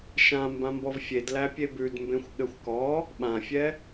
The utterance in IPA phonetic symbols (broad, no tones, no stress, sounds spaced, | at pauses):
ʃ ã m b ã m b ɔ v fʲ e d l æ pʲ e b ʉ d m b ẽ xʷ ɠ ɘ xʷ k ɔ | ɓ ã fʲ ɛ